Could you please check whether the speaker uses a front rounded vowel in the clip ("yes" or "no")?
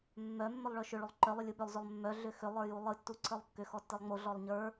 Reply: yes